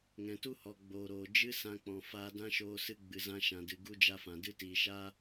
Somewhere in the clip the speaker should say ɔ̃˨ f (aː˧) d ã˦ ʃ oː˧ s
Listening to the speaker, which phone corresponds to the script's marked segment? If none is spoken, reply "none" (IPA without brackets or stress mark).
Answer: aː˧